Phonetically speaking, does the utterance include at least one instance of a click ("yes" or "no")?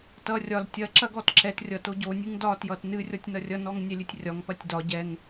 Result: yes